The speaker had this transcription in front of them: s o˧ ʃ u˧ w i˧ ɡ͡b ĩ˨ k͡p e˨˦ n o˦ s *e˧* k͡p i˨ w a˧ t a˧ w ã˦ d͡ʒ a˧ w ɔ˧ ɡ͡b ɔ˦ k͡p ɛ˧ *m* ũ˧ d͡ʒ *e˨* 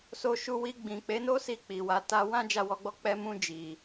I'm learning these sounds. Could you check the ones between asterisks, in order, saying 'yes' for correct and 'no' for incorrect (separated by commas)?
no, yes, no